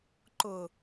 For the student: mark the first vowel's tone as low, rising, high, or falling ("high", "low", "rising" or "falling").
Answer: low